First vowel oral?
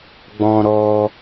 no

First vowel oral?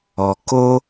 yes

